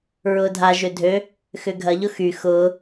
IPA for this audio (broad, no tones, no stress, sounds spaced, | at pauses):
ɹ ʊː dʱ a ʒ ø dʱ ø | x ʏ ɡʱ ɐ ʎ ʊ x y x ʊː